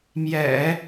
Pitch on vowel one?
low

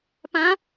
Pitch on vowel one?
rising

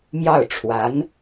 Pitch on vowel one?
falling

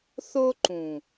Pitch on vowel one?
high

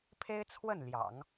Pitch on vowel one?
high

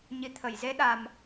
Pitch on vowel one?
rising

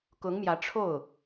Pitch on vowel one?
rising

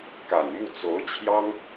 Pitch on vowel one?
low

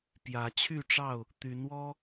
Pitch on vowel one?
rising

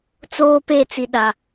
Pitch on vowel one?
high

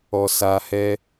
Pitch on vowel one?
high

